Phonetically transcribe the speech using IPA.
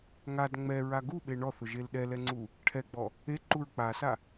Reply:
ŋ a d ŋ͡m ɛ ɹ a ɡ u ɓ e ɳ ɔ θ ʊ ʒ e l ɗ ɛ l ɛ ŋ͡ǀ u | ʈʰ ɛ ɡ͡b ɔ | e ǃ u ɹ k͡p a s a

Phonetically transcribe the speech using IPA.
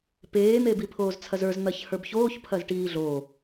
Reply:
p eː n̪ e b i pʰ oː z t͡sʰ ɐ z ə˞ z n̪ ɐ ç h ə˞ b ç oː ç pʰ ɐ z ʈ iː ɮ o

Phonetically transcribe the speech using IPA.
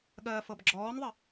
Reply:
ɠ ɜː f ɤ b ɡ͡ǁ ɔː n ðˤ ɘ

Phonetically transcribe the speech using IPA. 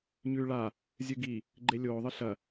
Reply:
ɲ ʉː ɭ a | zʲ ɨ ɡ i | ɡ͡ǃ e lʲ oː ðˤ ɨ ɬ ɐ

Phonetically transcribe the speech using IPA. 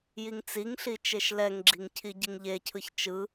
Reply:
j i ŋ t͡s i ŋ ɬ i t͡ʃ e ʃ l ɛ ŋ ɡ͡ǁ i ŋ cʰ i ɟ i ŋ ʎ e cʰ ɯ ç t͡ʃ ɯ

